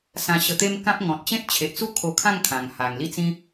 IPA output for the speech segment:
s ã˧ ɕ ə˧ t̪ e˦ m k ã˦ p̚ ŋ ɔ̃˨ t̚ t͡ɕ ẽ˦ t̚ t͡ɕʰ e˨ ʔ t͡s u˥˧ kʰ o˧ kʰ ã˥˧ ŋ kʰ ã˨˩ ŋ h a˨˩ ŋ l i˥˧ t͡s ĩ˦

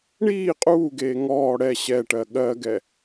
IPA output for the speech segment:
ɳ iː qʼ uː ɡ eː ŋ ɔː ɽ ɛ ɕ ɛ ʈ ɜ ɠ ɜ ɡ ɛ

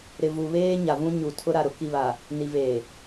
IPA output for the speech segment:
ɾ ɪ˨ v u˨ β eː˦ ɲ a˨ v ũ˦ ɲ u˨ tʰ ʊ˦ ɾ a˨ ɾ ʊ˦ k i˨ β a˨ | n i˨ v eː˨

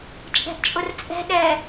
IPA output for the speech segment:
t͡ʃʼ ɛ̤ ʔ t͡ʃʼ ʊ r t͡sʼ ɛ̤ ɗ ɛ

